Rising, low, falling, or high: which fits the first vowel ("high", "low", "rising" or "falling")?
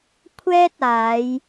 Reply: high